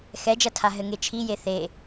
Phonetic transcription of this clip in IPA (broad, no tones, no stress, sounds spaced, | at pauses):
x ɛ d͡ʒ ɐ tʰ a ɦ ɘ ŋ e t͡ʃʰ i j e θ e